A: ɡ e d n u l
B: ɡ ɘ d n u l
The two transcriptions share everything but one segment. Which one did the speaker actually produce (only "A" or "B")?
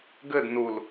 B